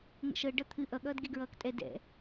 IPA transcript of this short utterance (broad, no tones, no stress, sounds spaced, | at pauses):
ŋ ə̰ ʃ ɤ ɖ ʌ t̪ʰ ɨ ʔ ʌ ɠ ʌː d ɡ e ɡ ɹ ʌː k tʼ ɛ d ɛ̰